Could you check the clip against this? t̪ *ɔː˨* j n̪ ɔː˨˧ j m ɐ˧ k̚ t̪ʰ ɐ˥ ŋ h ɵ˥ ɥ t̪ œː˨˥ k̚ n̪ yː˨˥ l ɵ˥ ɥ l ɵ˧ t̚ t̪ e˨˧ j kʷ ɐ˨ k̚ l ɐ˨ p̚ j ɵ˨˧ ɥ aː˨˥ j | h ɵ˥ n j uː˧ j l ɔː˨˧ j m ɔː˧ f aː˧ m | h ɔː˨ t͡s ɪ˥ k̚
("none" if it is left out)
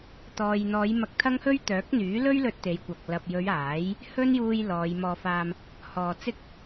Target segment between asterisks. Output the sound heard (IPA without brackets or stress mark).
ɔː˨